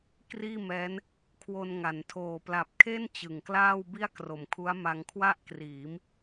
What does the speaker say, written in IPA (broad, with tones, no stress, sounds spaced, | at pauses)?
k r iː˥˩ m ɛː˦˥ n | kʰ w o˧ n ŋ a˩˦ n tʰ oː˨˩ p l a˨˩ p̚ kʰ e˥˩ n t͡ɕ ɯ˨˩ ŋ k l aː˥˩ w b i˥˩ a̯ k r o˨˩ m kʰ u˦˥ a̯ m a˧ ŋ kʰ w a˥˩ ʔ k r iː˩˦ m